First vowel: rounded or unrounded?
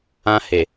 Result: unrounded